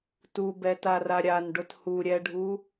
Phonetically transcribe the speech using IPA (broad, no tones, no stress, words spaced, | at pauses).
tubɛtara ɾʲanɖʊt huɾʲɛɖʱu